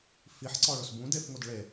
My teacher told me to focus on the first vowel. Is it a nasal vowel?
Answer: no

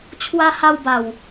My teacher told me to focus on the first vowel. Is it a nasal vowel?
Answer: no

